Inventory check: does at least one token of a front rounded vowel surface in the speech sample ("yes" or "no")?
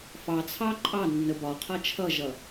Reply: no